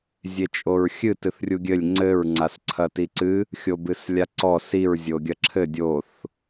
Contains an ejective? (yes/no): yes